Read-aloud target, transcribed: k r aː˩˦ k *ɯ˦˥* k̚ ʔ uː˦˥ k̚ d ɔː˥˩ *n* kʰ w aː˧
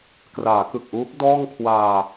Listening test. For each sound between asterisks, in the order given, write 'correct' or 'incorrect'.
incorrect, incorrect

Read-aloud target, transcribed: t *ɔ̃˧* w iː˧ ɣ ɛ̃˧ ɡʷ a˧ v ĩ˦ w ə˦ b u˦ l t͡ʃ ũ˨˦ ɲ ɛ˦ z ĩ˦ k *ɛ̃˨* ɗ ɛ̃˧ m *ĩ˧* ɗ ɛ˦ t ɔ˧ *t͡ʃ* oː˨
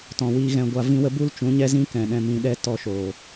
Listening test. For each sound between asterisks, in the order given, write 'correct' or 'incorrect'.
incorrect, correct, correct, incorrect

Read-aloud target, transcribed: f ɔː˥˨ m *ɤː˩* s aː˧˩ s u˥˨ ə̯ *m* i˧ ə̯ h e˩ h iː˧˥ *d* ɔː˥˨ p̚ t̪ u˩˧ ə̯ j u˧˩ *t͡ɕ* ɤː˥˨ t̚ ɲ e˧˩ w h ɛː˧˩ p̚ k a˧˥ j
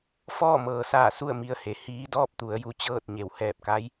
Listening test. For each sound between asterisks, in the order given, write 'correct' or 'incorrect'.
correct, correct, correct, correct

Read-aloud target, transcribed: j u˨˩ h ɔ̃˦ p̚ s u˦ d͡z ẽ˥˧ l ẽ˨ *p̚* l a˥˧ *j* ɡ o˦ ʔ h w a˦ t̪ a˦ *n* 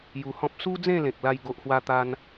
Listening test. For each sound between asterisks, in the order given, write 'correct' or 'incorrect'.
incorrect, correct, correct

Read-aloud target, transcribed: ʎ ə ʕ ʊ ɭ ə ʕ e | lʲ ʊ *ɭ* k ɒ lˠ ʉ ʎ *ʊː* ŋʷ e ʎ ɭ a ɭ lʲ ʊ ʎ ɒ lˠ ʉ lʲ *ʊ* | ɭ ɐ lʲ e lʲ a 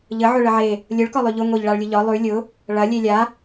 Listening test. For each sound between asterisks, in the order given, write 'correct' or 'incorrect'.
correct, incorrect, correct

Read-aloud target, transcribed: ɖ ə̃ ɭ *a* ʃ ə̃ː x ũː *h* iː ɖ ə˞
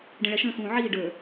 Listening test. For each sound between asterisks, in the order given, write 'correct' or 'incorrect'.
incorrect, incorrect

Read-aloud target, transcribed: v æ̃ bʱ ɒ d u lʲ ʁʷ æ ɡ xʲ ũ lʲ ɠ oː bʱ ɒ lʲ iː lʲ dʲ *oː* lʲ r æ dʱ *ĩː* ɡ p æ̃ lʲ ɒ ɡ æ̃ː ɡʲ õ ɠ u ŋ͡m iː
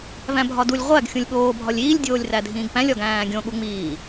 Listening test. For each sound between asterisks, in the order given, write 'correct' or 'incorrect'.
correct, correct

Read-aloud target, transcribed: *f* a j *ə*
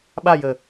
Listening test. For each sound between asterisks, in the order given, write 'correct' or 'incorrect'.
incorrect, correct

